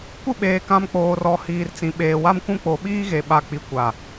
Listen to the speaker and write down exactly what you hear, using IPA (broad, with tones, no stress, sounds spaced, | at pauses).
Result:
kʷ ɪ˦˨ ɓ eː˨ k ã˨ m k͡p oː˨ r ɔ˨ h iː˨ r t͡s ĩ˨ ɓ eː˨ w a˦ m kʷ ũ˦ k͡p o˨ ɓ iː˦ ɣ e˨ ɓ a˨ k͡p i˨ kʷ a˨